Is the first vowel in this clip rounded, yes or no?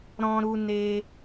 yes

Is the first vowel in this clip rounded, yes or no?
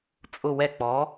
yes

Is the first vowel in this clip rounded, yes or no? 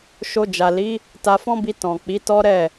yes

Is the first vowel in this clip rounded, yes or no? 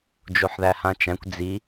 yes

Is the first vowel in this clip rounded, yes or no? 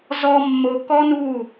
yes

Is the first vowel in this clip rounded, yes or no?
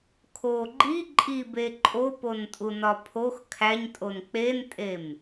yes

